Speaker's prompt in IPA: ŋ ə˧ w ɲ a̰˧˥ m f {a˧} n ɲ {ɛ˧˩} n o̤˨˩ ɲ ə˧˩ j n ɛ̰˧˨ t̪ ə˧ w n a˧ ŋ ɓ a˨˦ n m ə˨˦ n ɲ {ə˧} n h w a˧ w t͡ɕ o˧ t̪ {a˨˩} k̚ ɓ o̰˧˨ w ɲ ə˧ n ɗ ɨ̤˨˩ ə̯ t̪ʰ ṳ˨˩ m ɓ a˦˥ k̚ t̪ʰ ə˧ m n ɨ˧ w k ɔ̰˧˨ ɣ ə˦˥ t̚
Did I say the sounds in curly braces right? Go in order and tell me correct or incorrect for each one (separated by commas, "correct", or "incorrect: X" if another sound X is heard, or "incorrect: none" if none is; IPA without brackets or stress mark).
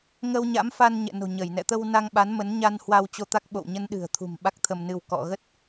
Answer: correct, incorrect: ɛ̰˧˨, incorrect: a˧, incorrect: a˦˥